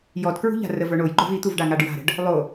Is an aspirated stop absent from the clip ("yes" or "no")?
yes